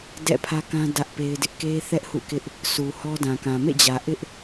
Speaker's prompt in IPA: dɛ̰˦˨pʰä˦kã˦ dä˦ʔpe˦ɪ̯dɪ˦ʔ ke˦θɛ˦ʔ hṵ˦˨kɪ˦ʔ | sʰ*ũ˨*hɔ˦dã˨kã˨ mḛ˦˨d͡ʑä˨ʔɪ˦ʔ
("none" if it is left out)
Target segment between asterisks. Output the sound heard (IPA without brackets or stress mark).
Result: u˨